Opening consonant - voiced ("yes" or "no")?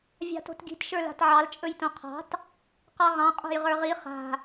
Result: yes